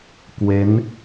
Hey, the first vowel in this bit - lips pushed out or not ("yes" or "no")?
no